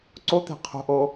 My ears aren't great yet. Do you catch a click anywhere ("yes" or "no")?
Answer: yes